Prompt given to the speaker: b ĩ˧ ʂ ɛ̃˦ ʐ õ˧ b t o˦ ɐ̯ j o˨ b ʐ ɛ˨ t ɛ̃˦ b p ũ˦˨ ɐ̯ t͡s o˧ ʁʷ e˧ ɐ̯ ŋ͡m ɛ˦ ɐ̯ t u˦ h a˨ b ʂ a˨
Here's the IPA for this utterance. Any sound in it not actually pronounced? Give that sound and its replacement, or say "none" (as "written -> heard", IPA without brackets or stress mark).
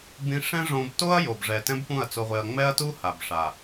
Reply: none